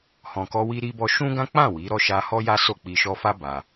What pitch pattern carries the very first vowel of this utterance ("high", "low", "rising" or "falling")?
low